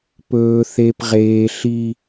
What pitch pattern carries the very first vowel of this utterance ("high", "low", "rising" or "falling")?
low